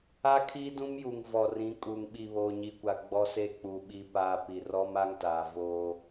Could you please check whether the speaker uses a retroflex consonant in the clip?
no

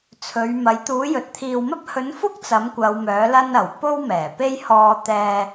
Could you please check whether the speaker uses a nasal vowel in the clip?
no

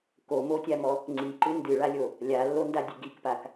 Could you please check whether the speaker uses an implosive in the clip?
no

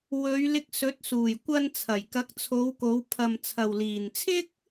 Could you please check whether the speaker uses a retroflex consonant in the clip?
no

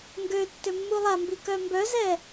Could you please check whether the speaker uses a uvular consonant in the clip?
no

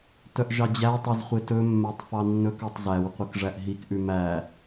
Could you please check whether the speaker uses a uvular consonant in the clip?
yes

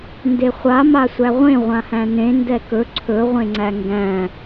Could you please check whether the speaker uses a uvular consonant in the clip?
yes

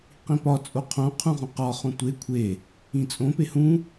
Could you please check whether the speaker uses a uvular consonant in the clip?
yes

